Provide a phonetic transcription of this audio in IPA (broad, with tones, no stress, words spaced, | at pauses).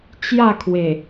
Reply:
t͡ɕja˥˧kʰwe˨˩